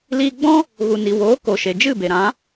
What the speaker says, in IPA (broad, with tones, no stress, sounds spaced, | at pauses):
l iː˧ ɡ͡b ɔ̃˦ | ɣ u˨ n i˨ w oː˨˦ k o˨ ʃ e˨ d͡ʒ ɨ˦˨ b e˨ ɾ ã˨˦